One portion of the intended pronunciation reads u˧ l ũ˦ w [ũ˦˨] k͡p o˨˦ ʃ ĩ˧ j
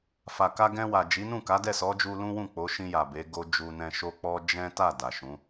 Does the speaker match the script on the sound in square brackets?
yes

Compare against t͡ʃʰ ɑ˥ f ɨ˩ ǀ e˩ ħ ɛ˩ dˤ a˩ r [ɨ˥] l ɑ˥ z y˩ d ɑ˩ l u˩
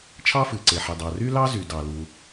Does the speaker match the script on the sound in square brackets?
no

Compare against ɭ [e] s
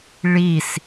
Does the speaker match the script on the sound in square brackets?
no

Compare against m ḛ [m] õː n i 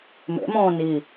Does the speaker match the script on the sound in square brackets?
yes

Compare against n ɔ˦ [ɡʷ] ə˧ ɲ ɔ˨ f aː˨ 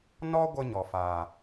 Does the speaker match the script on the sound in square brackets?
yes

